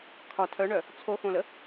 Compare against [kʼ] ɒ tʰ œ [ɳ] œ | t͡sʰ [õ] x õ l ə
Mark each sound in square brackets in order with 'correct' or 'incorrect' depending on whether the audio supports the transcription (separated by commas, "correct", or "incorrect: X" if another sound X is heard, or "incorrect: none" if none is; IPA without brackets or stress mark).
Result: incorrect: kʰ, correct, incorrect: o